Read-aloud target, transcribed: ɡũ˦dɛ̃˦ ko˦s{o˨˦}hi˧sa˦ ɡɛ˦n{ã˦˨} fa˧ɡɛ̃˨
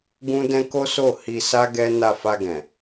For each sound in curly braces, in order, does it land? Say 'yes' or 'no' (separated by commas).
no, no